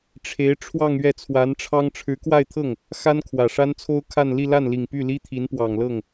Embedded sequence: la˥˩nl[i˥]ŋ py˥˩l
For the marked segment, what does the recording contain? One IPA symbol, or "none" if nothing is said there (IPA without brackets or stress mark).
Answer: i˨˩